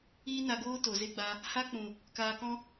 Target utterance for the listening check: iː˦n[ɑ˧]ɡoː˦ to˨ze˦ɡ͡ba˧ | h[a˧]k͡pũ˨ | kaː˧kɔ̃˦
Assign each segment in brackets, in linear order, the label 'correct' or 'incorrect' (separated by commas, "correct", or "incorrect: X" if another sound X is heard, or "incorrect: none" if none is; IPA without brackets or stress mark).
incorrect: a˧, incorrect: a˦